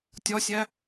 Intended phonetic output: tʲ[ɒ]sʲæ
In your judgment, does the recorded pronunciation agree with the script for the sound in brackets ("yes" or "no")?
yes